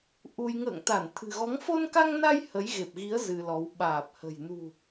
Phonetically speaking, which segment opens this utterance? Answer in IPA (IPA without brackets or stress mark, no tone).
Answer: ʔ